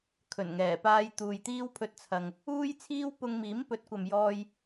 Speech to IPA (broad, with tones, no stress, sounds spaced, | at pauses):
kʰ ɵ˨˩ n ŋ ɛː˨˩ p aː˧ j t̪ uː˨ j t̪ iː˥ w pʰ ɵ˧ t̚ t͡sʰ ɐ˨ ŋ | uː˥ j t͡sʰ iː˥ w p ʊ˧ ŋ m iː˨˥ m p ɵ˨˥ t̚ kʷ ɐ˨ m j ɔː˧ j